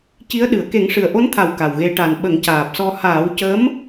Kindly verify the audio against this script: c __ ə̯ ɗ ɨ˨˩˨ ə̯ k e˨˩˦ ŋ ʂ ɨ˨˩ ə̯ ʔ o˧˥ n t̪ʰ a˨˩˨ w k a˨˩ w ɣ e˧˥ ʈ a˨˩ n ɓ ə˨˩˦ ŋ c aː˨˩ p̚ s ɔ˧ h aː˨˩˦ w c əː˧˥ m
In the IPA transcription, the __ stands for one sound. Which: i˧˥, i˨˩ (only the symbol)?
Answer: i˧˥